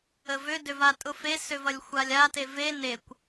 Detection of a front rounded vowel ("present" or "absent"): present